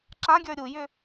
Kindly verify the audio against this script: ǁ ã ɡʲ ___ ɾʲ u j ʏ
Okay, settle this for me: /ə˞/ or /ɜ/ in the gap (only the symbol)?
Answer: ə˞